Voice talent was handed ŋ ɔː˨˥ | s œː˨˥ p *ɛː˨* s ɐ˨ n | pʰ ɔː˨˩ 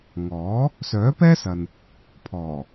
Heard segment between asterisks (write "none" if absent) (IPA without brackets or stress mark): ɛː˥